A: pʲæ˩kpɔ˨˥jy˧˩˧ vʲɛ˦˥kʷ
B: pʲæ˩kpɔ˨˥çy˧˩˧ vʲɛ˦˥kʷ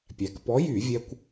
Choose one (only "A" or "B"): A